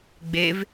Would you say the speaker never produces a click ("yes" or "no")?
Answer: yes